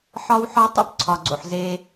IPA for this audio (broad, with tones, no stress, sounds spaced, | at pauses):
ħ ɒ˦ w ħ ɒ˦ tˤ o̰˦ p ǀʰ ɒ˨ ɡ͡ǀ o̰˨ ħ z e˦